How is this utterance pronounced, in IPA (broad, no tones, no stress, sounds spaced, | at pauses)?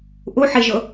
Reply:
ʔ u ħ i ʒ ʊ